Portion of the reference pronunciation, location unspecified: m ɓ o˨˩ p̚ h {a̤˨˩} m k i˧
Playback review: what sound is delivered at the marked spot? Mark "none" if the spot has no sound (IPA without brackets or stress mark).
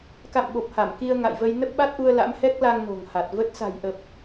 a˧˩